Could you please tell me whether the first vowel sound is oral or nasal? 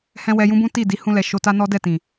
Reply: nasal